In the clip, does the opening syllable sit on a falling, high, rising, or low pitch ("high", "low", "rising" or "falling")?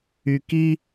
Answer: high